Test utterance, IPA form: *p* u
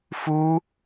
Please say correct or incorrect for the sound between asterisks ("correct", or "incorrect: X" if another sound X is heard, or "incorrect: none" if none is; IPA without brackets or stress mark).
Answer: incorrect: f